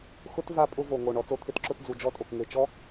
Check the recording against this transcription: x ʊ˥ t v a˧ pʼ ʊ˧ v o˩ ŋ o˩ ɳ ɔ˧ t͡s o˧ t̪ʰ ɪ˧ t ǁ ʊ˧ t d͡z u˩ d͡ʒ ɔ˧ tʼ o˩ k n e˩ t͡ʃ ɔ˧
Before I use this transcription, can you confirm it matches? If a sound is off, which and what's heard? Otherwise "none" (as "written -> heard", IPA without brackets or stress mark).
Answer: n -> ŋ